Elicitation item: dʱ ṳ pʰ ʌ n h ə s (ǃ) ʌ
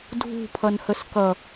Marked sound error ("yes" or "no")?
yes